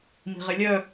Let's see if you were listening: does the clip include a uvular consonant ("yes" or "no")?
yes